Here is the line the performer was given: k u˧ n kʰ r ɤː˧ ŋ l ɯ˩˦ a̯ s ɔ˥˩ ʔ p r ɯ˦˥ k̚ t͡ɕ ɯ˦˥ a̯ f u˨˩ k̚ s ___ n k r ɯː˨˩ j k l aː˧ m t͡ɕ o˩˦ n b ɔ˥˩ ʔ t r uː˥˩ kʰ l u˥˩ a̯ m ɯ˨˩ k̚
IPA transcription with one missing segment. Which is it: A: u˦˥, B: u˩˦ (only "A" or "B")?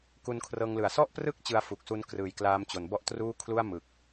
A